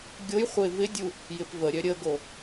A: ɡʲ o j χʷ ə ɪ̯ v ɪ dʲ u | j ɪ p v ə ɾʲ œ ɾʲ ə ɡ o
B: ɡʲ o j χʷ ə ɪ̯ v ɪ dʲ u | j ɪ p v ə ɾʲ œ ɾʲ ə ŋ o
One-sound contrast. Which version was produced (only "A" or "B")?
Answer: A